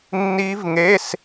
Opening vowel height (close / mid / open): close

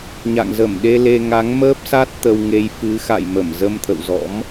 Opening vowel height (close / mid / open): open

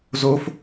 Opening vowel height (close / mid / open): mid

